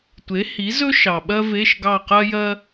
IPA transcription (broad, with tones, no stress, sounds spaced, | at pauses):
tʷ e˩˥ h i˩˥ z ɵ˥ ʃ ɑ˩ ɓ ɜ˥ v e˧˥˧ ʃ ɡ ɑ˦˨ q ɜ˥ j ɜ˥